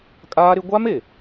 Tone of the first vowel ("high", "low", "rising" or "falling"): high